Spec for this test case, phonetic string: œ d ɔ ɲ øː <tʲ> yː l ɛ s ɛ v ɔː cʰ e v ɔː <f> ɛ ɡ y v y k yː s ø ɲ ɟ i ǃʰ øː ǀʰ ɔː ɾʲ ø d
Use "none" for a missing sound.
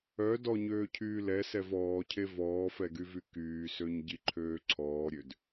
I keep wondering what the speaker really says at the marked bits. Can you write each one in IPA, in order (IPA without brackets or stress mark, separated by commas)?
cʰ, f